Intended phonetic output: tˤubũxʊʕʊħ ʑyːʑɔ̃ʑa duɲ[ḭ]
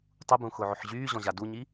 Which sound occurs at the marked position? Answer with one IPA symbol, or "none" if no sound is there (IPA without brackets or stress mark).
i